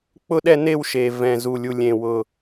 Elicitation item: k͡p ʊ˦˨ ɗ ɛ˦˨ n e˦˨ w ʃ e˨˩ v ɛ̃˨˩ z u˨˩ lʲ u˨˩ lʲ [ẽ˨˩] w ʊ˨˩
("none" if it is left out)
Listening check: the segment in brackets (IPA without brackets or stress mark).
ẽ˨˩